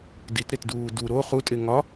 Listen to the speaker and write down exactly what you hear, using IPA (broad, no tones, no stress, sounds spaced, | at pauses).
d i t ɾ e t d uː d u ɾ o χ u tʼ e ŋ ɒ